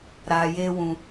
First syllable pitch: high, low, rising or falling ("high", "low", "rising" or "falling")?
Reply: low